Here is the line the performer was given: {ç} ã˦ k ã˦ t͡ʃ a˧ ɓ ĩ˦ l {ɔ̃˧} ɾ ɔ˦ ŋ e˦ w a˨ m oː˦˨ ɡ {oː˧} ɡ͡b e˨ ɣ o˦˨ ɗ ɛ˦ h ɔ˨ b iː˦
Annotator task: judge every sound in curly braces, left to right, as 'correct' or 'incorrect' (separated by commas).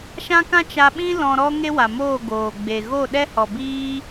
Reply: incorrect, correct, incorrect